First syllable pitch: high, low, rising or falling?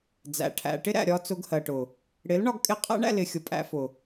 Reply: low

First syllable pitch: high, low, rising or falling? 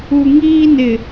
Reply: low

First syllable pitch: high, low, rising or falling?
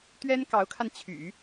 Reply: high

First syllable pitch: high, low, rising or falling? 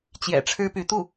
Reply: low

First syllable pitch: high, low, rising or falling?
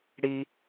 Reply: high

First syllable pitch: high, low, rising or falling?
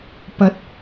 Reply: rising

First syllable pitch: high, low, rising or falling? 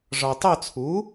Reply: low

